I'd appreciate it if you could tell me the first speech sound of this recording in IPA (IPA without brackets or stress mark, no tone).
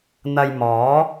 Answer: n̪